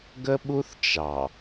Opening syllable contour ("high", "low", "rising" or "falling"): high